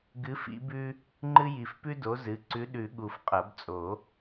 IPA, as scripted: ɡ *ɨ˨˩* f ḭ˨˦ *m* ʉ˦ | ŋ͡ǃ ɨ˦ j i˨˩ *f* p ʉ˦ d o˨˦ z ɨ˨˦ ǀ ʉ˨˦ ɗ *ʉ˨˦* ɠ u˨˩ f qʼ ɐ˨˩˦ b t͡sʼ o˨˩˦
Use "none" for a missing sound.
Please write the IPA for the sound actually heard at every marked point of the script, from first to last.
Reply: ɨ˨˦, b, f, ʉ˨˩˦

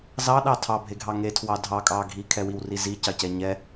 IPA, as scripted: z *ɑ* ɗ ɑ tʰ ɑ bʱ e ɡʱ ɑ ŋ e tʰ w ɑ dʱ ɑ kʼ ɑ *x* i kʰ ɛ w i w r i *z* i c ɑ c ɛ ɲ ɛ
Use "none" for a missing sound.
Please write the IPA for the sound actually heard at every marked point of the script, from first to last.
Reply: ɑ, ɡʱ, z

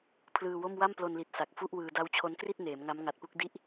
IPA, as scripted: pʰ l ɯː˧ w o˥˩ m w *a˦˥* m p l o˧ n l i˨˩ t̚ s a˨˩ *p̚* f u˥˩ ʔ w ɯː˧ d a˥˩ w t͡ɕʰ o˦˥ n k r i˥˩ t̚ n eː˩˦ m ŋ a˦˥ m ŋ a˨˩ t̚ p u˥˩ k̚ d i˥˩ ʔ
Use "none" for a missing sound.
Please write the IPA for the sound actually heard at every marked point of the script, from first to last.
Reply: a˥˩, k̚

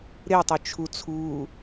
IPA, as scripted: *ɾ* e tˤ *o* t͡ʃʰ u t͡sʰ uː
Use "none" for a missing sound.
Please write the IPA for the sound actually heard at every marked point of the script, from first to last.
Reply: ɾ, ɵ

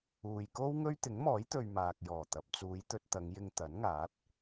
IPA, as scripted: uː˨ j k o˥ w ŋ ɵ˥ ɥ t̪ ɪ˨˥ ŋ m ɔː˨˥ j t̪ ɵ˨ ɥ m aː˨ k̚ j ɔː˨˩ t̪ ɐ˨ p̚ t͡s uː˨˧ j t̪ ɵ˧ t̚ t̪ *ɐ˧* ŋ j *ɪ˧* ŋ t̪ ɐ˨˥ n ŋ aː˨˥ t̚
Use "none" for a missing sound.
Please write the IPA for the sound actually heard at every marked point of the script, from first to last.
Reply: ɐ˨˧, ɪ˧

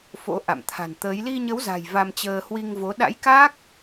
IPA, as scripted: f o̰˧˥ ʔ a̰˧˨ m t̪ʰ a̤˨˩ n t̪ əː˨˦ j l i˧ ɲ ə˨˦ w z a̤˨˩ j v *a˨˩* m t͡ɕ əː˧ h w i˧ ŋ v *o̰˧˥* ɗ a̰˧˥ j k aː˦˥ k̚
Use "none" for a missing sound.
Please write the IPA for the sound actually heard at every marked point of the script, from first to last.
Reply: a˧, o˨˦

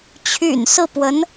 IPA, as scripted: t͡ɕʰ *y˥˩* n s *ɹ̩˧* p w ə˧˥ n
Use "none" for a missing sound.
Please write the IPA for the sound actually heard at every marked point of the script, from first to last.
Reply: y̰˨˩, ɹ̩˥˩

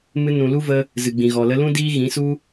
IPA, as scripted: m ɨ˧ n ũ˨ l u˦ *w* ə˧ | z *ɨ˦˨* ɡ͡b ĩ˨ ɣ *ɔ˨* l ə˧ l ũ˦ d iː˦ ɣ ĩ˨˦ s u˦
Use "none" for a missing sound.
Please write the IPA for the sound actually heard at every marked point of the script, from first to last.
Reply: v, ɨ˨, ɔ˨

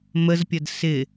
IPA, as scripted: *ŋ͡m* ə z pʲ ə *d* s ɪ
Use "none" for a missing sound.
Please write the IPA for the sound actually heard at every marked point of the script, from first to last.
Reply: m, d

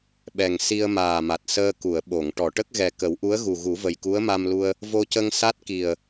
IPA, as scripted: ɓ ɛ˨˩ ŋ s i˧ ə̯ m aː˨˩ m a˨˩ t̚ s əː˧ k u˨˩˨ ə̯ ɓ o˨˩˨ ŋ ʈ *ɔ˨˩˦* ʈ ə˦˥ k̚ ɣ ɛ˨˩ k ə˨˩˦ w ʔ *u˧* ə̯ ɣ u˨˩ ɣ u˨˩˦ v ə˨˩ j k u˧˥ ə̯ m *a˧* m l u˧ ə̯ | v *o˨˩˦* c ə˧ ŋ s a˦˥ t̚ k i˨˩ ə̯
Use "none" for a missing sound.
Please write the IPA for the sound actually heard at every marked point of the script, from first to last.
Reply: ɔ˨˩˨, u˧˥, a˧, o˧

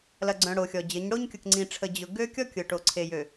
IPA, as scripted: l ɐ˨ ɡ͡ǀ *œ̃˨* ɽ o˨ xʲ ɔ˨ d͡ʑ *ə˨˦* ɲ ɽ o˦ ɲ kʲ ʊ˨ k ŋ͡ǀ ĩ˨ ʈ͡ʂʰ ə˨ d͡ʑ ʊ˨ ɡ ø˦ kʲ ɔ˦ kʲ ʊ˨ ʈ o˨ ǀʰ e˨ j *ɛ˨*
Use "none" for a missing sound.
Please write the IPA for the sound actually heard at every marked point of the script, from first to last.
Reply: œ̃˨, ə˨˦, ø˨

